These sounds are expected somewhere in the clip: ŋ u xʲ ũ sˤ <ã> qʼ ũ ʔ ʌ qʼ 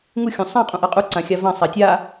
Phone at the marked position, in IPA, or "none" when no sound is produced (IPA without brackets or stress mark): ã